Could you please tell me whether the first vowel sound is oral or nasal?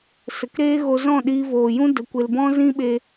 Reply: oral